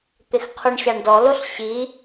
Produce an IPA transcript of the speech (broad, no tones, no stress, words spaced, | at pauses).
t̪ɪxqʰoɳɕaɳdɔ loɬɕi